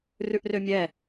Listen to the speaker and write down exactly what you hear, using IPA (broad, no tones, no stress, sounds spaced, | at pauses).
r ʉ ʔ r ø mʲ ɛ